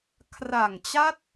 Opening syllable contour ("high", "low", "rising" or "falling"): low